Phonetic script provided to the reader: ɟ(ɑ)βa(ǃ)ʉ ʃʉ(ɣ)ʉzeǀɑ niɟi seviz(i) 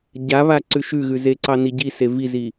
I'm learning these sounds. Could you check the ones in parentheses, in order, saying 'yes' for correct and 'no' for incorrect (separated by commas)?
no, no, yes, yes